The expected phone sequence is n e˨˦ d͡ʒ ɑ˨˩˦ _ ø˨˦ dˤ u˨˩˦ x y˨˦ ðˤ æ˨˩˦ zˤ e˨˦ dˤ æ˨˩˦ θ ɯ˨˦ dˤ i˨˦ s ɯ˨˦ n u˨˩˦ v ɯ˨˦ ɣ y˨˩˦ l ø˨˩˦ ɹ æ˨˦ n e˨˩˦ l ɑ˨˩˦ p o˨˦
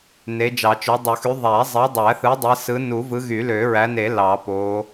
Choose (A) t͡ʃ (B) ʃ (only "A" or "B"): A